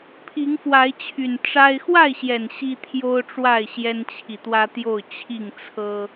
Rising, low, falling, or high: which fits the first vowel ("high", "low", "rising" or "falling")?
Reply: rising